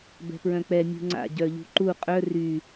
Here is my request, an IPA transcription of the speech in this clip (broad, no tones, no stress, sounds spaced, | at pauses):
b ɛ̤ p ɹ œ̃ k͡p ɛ mʲ ṳ ŋ͡ǀ a̰ ɟ œ ʎ ṳ ǃ u qʼ œ r y